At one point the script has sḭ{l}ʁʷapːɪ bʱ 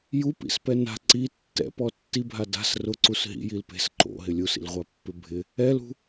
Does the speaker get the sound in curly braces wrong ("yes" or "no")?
no